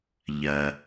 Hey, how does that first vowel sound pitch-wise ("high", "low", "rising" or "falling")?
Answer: low